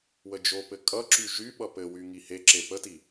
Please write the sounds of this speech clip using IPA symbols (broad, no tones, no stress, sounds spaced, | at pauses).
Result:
w ə d͡ʒ o p ɘ kʼ ʌ ǁ y ʒ y ɓ ʌ p ɘ w y ŋ i h e ǁ e p ə t i